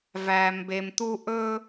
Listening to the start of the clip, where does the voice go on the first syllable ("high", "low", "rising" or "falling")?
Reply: low